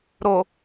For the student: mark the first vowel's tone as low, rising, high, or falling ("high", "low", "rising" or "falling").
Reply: low